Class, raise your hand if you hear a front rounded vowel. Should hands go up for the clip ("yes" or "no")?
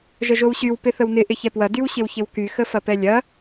yes